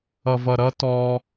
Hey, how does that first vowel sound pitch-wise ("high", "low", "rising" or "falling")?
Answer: low